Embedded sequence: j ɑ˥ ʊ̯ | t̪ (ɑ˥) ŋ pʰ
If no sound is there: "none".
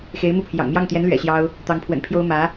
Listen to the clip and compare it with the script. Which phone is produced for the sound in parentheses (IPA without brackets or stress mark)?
ɑ˧˥